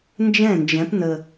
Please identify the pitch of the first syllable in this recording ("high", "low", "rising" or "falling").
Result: falling